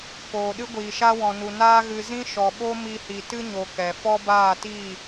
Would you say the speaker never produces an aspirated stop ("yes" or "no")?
yes